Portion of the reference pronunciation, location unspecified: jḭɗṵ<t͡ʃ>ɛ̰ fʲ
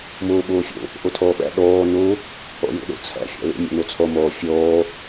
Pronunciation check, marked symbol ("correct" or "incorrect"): incorrect